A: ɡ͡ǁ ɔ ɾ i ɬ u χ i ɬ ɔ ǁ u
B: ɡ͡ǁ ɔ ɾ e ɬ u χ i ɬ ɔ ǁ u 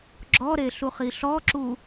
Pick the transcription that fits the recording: B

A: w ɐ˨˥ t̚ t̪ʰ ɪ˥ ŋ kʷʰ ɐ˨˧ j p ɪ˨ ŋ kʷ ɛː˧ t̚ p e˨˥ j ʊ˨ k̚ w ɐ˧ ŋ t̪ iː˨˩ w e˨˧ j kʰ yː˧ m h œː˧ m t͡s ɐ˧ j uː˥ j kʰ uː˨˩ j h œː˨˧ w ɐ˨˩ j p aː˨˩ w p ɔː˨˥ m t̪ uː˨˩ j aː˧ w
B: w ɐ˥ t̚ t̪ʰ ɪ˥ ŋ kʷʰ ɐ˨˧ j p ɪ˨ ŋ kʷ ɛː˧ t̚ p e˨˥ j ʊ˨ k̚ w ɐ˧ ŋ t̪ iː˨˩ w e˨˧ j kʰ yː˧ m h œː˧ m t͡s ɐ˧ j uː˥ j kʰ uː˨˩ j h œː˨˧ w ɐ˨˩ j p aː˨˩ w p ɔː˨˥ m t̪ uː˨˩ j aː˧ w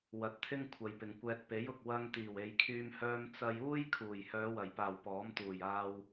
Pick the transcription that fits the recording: A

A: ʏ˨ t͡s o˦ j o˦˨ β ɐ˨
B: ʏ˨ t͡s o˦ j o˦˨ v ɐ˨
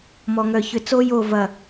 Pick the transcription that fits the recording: B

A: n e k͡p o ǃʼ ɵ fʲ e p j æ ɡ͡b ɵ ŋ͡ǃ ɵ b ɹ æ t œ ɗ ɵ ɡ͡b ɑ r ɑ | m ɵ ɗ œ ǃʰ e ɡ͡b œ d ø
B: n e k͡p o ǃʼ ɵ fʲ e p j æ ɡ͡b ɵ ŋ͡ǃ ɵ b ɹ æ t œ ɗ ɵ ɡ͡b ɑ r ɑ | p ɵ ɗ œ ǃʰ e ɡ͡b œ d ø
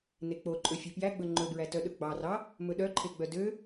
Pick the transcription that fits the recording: A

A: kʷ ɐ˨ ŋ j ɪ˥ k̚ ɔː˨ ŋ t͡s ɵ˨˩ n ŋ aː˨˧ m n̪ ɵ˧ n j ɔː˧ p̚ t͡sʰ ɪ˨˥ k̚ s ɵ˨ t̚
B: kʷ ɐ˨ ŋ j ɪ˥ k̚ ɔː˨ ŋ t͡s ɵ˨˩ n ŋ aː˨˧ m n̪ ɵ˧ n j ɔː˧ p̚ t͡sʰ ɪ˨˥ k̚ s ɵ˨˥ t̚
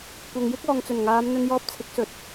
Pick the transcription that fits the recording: A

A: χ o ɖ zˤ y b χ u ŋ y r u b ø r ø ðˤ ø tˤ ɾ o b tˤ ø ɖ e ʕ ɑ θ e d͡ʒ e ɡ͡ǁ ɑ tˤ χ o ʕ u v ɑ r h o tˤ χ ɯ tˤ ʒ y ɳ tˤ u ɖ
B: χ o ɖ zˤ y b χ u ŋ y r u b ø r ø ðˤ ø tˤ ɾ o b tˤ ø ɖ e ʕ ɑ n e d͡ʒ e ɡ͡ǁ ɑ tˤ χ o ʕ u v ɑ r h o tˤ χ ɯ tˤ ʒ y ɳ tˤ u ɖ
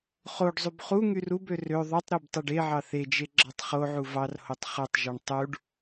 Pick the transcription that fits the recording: A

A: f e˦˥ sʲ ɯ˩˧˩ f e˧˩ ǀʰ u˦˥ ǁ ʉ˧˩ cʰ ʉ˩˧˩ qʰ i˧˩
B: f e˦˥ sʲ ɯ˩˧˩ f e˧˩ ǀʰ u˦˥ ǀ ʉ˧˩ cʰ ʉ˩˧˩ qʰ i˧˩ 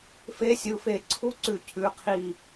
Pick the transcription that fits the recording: B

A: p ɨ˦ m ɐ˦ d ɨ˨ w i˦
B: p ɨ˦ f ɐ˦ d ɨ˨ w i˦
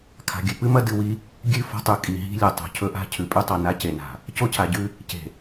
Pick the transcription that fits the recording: A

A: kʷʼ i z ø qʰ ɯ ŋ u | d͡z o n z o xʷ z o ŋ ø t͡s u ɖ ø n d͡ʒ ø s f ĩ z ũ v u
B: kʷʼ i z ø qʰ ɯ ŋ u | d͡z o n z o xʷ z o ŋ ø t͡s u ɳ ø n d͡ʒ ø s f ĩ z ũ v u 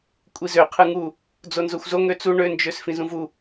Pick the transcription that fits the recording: B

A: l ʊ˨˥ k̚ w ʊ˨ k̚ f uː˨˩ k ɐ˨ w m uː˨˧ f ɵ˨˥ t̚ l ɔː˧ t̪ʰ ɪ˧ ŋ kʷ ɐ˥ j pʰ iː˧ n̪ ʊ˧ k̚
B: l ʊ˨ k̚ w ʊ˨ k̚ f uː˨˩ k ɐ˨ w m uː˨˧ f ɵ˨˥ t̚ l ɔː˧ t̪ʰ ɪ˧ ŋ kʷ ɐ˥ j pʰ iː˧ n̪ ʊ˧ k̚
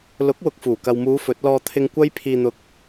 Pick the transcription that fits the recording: A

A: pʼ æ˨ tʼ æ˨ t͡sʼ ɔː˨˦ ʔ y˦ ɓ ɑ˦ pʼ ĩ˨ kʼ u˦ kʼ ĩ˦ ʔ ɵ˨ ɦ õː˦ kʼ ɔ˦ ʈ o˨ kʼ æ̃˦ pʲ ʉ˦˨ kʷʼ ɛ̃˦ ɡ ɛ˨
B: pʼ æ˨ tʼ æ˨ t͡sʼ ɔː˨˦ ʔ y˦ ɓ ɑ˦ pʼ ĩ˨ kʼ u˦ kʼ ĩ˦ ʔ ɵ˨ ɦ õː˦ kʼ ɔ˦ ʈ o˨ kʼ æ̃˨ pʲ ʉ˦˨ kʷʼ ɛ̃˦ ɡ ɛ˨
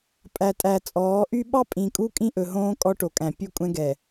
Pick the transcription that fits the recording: B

